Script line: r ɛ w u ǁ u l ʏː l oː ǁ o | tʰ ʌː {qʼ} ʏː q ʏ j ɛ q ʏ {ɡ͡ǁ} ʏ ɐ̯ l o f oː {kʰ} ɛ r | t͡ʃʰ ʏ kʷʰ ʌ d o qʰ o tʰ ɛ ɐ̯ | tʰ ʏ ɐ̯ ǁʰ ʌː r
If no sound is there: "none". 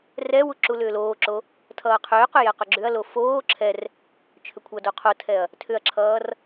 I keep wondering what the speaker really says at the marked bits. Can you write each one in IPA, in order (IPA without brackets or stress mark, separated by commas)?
qʰ, ɡ͡ǁ, ǁʰ